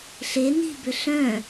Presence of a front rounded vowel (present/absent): present